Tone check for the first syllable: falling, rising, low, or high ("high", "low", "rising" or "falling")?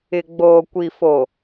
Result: low